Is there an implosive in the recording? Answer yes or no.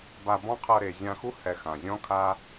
no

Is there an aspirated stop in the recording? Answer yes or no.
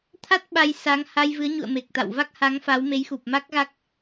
yes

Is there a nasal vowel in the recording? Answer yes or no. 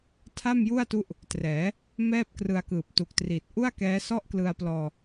no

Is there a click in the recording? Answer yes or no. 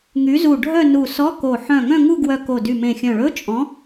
no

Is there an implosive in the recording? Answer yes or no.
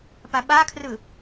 yes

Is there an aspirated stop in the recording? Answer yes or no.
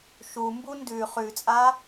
no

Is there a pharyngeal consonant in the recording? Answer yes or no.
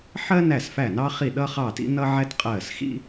yes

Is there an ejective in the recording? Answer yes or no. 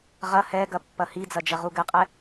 yes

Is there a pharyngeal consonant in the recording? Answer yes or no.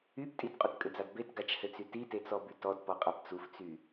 no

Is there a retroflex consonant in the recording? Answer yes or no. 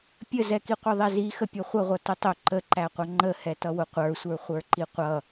no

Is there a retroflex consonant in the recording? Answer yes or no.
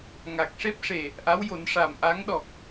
yes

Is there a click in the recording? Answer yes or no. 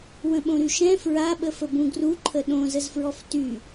yes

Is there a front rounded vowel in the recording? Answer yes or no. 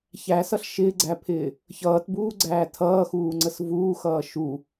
no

